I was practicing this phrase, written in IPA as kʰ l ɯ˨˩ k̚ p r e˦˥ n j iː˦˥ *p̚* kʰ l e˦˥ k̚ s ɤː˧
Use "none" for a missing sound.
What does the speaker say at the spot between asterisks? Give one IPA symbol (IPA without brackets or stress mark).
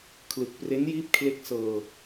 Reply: p̚